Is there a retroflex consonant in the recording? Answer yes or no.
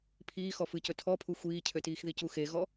no